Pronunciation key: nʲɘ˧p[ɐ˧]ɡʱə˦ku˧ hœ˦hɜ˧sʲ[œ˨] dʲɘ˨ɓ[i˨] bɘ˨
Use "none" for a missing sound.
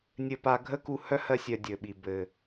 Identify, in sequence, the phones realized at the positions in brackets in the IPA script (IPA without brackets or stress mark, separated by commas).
a˧, œ˨, i˨